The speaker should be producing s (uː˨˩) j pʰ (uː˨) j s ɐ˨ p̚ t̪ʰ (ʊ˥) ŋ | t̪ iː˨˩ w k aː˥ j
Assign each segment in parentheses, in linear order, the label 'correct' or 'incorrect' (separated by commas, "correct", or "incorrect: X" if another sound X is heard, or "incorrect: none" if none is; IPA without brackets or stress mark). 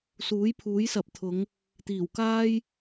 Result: incorrect: uː˨˥, incorrect: uː˨˥, incorrect: ʊ˨˧